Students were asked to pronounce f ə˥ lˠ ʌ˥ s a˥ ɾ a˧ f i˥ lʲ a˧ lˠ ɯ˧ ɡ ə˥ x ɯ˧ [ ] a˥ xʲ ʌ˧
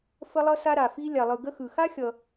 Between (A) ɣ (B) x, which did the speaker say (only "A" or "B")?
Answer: B